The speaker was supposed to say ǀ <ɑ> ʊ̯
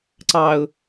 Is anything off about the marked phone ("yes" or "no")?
no